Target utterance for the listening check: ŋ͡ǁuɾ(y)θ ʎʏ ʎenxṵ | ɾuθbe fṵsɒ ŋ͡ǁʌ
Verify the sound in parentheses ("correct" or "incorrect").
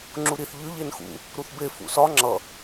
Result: incorrect